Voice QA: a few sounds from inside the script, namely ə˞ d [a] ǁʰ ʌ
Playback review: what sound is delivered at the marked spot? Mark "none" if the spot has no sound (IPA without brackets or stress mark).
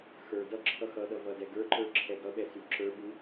ʌ